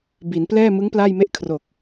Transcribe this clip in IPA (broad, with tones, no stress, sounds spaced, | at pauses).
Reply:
b i˩˦ n p l ɛː˥˩ m ɯ˦˥ ŋ p l aː˥˩ j m e˥˩ ʔ kʰ r o˨˩ k̚